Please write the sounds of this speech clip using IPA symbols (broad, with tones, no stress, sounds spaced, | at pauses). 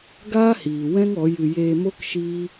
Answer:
ɡ aː˦ h iː˨ w ɛ̃˦ ŋ ɔ˨˦ j ɨ˧ j eː˧ m o˦ k ʃ iː˦